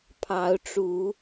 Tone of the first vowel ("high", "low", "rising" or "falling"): rising